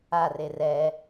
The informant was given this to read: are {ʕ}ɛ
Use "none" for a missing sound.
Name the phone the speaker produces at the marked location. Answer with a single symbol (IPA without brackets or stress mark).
r